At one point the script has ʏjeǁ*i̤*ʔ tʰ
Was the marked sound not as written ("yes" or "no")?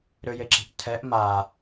no